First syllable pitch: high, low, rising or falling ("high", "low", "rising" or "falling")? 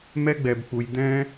high